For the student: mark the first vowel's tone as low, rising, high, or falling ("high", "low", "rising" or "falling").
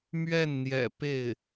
falling